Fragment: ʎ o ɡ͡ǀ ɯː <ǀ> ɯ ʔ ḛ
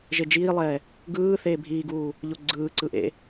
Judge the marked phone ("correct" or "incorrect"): correct